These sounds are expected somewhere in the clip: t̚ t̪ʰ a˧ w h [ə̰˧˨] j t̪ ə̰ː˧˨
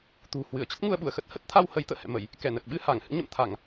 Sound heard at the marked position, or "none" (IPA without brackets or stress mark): ə˨˦